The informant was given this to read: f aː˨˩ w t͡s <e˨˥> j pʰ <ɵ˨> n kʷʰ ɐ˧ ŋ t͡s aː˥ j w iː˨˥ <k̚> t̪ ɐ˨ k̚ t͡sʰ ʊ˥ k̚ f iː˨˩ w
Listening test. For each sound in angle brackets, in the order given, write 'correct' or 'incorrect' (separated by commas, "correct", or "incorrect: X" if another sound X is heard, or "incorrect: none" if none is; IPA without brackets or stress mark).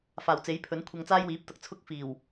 correct, incorrect: ɵ˨˥, incorrect: p̚